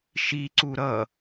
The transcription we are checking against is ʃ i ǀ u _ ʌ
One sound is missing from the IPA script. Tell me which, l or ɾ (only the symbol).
ɾ